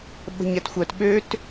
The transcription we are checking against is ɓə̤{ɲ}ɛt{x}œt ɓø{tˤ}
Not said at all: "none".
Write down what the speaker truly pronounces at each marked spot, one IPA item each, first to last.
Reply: ɲ, xʷ, t

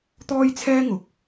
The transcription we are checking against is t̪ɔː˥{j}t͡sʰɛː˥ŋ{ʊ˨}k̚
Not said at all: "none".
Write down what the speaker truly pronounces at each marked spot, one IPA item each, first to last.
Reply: j, ʊ˨

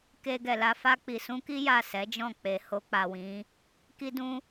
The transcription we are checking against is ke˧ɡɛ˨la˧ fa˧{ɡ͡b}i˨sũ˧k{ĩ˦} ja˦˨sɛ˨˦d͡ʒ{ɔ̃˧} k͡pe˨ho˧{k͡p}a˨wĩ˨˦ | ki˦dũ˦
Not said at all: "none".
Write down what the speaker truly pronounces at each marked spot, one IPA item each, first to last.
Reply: k͡p, i˦, ɔ̃˦˨, k͡p

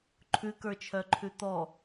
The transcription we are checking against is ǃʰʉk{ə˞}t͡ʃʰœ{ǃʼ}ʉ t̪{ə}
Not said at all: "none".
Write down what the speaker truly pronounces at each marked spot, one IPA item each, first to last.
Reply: ə˞, ǃʰ, ɔ

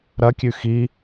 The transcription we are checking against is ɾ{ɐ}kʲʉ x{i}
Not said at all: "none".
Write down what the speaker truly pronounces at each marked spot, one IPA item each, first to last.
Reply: ɐ, i

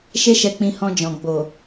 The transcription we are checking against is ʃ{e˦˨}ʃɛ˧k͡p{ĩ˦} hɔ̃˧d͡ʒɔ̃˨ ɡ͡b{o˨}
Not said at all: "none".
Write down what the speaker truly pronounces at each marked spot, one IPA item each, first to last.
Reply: e˦, ĩ˧, o˨

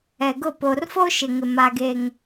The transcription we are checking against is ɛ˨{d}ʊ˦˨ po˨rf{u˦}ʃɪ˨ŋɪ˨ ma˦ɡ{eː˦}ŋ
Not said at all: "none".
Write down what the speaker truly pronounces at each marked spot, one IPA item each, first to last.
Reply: ɡ, o˦, e˦

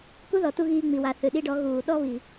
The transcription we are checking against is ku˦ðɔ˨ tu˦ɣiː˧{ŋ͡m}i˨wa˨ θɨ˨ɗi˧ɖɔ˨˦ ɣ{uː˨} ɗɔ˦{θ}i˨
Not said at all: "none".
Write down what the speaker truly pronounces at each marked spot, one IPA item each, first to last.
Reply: ŋ͡m, uː˨, β

